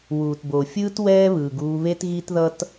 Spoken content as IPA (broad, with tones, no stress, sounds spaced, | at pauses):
w uː˨ t b o˨ fʲ ɯː˦ t w ɛː˦ β ɯː˨ ɡ uː˧ β e˦ t ɣ i˦ t ð ʌ˦ t